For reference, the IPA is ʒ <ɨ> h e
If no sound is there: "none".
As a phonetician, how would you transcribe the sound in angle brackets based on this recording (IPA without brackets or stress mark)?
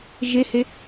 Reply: e